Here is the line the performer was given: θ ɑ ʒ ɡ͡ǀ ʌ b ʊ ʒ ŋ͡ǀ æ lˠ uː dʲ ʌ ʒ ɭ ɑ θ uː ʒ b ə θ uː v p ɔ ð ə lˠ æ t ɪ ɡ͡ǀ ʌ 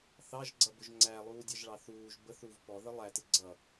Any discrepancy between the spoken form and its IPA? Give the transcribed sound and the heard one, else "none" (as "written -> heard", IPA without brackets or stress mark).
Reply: none